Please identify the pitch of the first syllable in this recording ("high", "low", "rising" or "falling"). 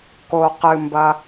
low